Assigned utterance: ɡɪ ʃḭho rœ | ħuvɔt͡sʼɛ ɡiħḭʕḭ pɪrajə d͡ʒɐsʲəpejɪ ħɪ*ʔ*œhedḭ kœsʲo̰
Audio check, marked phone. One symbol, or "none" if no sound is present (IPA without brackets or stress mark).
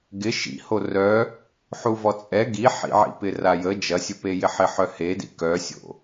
ħ